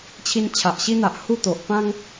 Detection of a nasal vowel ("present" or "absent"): present